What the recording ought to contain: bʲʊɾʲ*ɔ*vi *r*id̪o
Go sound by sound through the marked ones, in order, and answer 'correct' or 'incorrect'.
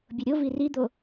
incorrect: o, correct

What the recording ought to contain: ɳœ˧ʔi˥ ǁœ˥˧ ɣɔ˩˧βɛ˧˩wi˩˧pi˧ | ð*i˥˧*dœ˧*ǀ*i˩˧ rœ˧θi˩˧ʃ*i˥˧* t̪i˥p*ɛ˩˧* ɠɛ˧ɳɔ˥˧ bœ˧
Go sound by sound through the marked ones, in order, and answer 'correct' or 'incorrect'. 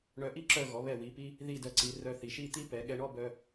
correct, correct, correct, correct

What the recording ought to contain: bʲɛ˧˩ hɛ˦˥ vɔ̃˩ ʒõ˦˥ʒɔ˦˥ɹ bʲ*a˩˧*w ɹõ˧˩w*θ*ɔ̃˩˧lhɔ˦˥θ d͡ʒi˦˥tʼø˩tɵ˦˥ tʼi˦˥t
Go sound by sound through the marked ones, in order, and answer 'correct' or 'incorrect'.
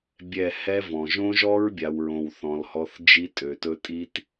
correct, correct

